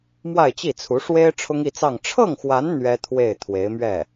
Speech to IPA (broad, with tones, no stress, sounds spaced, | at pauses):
m w a˥˧ ɪ̯ t͡ɕ i˥˩ t͡sʰ u˧˥ ʂ w e˥ ɪ̯ ʈ͡ʂʰ ʊ˥ ŋ i˥˧ t͡s ɑ˥˧ ŋ ʈ͡ʂʰ ɤ˥˩ ŋ x w a˧˥ n n̪ ɥ ɛ˥ t̪ʰ w e˥˩ ɪ̯ t̪ʰ w e˧˥ ɪ̯ m ɥ ɛ˥˩